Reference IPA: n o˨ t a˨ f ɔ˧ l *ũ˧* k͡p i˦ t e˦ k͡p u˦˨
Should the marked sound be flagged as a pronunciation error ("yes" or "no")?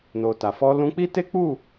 no